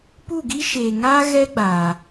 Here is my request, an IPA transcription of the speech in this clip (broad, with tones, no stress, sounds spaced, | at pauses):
p u˦˨ ɡ i˦ ʃ eː˨ ŋ aː˦ ɣ ɛ˦ ɡ͡b aː˨